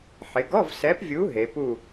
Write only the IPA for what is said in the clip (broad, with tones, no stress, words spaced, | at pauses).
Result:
ħɪ˩˧ɡɔ˧˥˧vsɛ˨˥pvʲu˨˥ ɦe˩˧pu˥˨